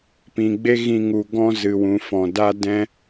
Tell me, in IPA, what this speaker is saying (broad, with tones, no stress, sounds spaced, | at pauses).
p ĩ˨ ɡ͡b e˦ ɣ ĩ˧ ŋ u˨ ɡ ɔ̃˧ z ɨ˨ w ũ˨ f ɔ̃˨ d a˦ d ɛ̃˦